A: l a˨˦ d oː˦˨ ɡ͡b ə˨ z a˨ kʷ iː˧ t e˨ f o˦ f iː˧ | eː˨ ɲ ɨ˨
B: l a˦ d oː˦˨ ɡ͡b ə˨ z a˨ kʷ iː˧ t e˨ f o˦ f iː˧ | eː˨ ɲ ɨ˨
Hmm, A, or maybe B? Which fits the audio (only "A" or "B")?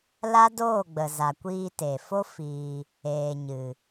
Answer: B